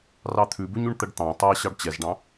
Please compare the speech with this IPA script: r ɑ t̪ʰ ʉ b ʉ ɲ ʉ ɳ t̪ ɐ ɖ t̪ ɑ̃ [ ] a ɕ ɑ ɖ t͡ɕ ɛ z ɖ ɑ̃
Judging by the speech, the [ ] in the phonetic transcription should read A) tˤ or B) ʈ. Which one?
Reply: A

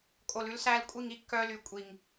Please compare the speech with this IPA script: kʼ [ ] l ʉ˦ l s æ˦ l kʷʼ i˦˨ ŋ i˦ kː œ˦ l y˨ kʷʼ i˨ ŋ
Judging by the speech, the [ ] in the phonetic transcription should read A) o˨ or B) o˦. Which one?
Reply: A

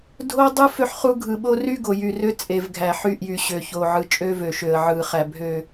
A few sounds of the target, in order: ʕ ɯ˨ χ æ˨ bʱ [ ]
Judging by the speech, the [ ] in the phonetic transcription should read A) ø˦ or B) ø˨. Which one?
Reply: B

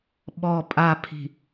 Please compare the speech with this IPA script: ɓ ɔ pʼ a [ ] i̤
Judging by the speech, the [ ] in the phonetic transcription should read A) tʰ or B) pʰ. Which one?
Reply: B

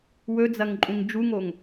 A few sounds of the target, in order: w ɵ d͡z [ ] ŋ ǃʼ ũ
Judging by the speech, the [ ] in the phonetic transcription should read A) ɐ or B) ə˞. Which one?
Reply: A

